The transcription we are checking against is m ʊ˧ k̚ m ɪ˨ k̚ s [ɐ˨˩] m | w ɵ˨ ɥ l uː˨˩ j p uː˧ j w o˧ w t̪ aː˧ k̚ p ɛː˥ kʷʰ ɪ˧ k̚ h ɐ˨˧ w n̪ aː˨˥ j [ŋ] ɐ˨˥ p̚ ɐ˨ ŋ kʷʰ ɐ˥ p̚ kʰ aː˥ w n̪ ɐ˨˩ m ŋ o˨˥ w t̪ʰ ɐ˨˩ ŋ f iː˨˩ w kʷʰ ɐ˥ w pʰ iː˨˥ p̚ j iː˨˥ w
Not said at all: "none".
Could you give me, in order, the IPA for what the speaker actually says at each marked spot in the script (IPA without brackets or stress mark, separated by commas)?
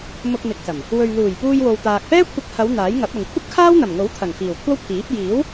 ɐ˨˩, ŋ